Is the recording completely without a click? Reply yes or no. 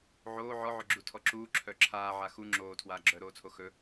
no